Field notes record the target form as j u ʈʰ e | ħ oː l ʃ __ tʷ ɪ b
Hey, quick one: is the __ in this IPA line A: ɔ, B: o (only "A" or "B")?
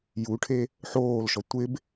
A